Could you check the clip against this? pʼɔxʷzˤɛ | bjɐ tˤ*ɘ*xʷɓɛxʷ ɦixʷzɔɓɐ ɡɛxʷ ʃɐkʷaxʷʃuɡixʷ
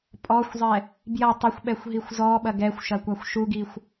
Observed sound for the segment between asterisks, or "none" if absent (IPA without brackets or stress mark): ɘ